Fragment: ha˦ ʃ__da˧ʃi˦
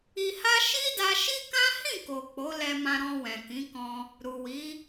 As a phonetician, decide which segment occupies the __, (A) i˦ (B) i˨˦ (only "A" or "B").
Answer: A